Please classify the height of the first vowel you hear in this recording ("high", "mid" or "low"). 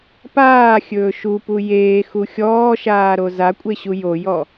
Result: low